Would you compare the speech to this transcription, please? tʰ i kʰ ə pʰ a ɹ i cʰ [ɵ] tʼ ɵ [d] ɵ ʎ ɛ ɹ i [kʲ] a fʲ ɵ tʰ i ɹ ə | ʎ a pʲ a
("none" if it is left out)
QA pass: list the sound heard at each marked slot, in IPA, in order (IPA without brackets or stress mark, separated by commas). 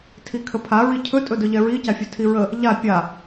ɵ, d, c